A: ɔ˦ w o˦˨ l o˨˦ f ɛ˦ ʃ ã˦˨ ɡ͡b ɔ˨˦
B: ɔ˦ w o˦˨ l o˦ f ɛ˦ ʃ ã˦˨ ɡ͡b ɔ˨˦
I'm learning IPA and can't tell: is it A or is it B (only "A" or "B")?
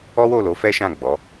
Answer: A